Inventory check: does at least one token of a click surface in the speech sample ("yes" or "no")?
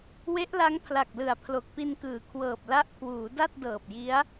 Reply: no